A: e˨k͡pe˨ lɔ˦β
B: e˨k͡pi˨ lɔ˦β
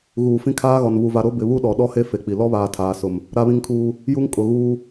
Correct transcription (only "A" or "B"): B